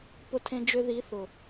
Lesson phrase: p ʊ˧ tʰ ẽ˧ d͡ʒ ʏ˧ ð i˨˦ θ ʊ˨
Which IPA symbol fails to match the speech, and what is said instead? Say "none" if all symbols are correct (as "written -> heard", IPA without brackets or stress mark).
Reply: none